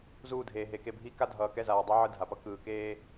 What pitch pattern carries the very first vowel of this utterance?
falling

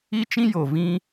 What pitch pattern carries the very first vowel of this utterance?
high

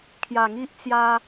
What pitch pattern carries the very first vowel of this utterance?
low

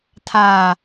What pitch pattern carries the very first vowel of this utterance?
low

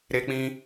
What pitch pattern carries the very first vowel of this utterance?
high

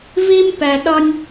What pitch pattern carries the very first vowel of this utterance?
high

